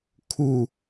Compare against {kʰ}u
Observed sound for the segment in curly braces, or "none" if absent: kʰ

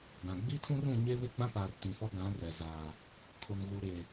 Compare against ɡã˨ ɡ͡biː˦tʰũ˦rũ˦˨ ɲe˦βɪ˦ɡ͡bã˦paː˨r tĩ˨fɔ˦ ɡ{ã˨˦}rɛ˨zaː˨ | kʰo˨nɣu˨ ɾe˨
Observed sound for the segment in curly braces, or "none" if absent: ã˨˦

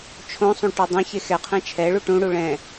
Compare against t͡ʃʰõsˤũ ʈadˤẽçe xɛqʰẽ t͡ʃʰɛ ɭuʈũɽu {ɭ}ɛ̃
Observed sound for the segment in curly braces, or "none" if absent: ɭ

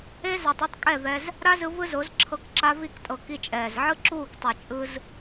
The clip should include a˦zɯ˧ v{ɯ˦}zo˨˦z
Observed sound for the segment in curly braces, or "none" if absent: ɯ˦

